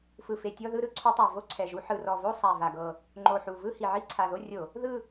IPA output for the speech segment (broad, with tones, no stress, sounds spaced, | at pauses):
f ɯ˨˩ f e˨˩ tʲ ɔ˦˨ ð ɯ˦˨ ɾ ɯ˧˩˧ ǀʰ u˧˩˧ tˤ a˨˩ v o˦˨ ǀʰ ɛ˨˩ ʒ u˧˩˧ ħ ɯ˨˩ r ɔ˨˩ v o˦˨ sˤ a˨˩ v a˨˩ ɡ ɤ˨˩ | ŋ͡ǃ o˨˩ ħ u˨˩ v ɯ˦˨ h i˨˩ ʕ i˦˨ ǀʰ a˨˩ ð o˦˨ rʲ o˧˩˧ | ð ɯ˦˨